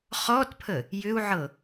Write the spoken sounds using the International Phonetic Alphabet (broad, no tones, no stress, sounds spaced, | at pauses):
χ ɔ t pʰ ə | j ʏ u̯ ʕ ɤ